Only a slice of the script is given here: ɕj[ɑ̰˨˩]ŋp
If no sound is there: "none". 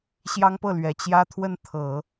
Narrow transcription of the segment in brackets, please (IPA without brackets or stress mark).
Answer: ɑ˥